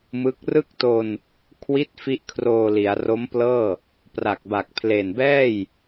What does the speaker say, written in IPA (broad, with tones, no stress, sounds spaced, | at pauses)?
m ɯ˦˥ k̚ r ɯ˥˩ k̚ t o˧ n | kʰ w i˦˥ t̚ f i˥˩ ʔ kʰ r oː˧ l i˩˦ a̯ r o˦˥ m p l ɤː˥˩ | p r a˨˩ k̚ b a˨˩ k̚ pʰ l e˨˩ n b ɛː˥˩ j